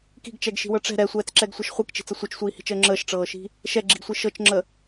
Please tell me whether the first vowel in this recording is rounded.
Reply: no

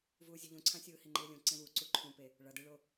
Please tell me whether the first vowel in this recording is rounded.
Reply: yes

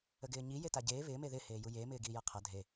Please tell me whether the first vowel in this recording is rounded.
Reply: no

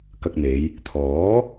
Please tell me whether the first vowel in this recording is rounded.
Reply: no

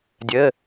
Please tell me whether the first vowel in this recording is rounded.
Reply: no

